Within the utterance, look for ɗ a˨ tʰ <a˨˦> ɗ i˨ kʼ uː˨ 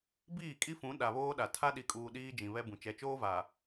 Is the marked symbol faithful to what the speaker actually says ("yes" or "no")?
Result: no